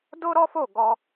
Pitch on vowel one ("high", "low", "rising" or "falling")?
high